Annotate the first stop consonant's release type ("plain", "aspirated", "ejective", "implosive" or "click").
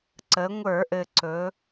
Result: click